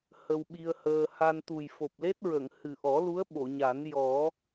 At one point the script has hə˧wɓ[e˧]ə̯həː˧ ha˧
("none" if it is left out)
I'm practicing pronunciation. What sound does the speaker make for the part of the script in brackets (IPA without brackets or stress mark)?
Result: i˧